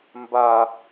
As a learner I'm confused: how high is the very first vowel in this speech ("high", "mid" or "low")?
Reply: low